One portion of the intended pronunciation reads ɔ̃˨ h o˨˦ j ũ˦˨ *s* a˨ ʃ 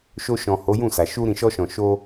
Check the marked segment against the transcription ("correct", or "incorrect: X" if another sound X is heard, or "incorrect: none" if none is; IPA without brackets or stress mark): correct